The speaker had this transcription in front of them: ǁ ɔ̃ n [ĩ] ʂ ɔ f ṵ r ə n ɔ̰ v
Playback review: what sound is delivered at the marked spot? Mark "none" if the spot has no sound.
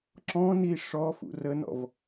i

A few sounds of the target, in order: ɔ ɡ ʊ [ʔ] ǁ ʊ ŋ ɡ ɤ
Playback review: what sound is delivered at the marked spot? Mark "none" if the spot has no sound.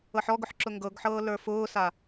ħ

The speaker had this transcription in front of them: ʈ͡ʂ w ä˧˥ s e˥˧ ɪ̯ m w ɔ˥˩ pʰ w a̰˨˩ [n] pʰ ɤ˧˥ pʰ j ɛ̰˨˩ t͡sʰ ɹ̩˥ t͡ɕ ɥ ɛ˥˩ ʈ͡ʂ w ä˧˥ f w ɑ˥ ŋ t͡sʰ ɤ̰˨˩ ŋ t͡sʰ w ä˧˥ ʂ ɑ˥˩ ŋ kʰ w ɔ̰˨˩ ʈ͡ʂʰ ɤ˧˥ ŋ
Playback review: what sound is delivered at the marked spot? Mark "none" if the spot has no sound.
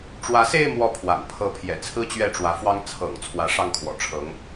n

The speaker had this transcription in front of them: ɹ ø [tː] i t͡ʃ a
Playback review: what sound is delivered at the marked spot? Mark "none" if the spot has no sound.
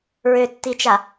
tː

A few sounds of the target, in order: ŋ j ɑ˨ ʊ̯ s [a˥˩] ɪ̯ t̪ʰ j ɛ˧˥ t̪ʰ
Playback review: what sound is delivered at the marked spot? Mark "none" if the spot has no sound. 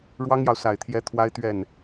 a˨˩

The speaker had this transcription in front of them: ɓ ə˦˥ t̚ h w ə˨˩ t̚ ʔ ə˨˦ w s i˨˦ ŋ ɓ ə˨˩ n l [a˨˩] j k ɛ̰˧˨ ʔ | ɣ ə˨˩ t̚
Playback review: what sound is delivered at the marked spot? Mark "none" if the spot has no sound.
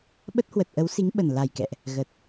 a˨˩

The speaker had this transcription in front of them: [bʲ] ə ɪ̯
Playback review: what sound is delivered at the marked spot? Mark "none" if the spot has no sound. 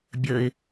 bʲ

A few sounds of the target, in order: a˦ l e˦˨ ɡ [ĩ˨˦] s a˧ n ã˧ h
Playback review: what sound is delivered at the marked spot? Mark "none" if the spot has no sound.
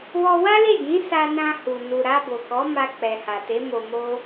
ĩ˨˦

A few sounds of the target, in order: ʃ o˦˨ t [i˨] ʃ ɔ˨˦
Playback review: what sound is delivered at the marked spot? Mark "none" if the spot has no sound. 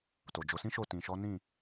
ĩ˨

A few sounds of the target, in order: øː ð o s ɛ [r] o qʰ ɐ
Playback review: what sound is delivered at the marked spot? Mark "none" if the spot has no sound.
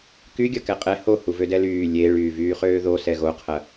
ɣ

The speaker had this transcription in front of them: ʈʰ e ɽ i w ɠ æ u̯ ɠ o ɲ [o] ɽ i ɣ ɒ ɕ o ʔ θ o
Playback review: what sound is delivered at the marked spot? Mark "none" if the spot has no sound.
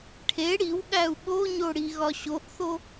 o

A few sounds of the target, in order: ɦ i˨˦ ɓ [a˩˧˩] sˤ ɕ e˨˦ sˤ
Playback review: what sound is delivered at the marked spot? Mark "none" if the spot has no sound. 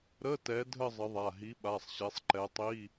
a˩˧˩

